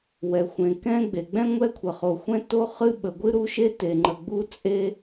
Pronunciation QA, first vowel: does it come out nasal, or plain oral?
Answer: oral